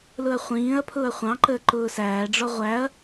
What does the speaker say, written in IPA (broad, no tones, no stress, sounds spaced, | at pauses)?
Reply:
l ʊ ɐ̯ χʷ ĩː ɐ̯ pʰ ʊː ɐ̯ χʷ ɑ̃ ǃ əː ǃ ʊː s æː ɖ͡ʐ ɔ ʁʷ æ ɐ̯